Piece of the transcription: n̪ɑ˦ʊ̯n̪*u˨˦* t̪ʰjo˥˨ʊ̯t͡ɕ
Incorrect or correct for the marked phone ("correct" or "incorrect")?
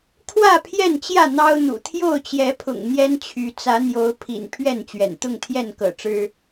incorrect